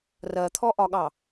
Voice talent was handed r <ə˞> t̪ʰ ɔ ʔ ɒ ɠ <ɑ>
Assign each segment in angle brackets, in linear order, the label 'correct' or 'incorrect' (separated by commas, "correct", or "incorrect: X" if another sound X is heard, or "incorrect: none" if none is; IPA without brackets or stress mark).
incorrect: ɜ, correct